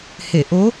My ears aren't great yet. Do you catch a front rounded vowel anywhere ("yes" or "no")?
no